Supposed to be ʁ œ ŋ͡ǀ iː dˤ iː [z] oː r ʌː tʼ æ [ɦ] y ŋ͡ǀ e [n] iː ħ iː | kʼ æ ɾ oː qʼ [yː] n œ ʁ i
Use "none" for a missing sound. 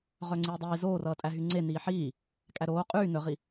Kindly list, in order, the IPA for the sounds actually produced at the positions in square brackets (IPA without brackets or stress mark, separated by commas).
z, ɦ, n, yː